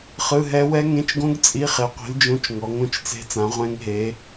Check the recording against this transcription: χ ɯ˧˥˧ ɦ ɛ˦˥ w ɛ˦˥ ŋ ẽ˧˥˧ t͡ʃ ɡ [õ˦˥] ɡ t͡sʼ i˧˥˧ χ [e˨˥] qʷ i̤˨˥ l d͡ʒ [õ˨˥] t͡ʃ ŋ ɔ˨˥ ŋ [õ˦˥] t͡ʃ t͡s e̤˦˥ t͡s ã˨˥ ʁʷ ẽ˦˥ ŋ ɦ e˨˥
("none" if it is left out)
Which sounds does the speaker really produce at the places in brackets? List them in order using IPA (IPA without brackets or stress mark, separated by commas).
õ˦˥, e˨˥, õ˧˥˧, õ˦˥